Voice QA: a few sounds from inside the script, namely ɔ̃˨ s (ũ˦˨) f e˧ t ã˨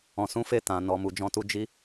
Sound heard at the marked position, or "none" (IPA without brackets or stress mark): ũ˨˦